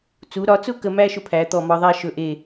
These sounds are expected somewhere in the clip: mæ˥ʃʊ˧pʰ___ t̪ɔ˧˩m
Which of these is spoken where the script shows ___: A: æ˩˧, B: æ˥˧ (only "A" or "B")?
A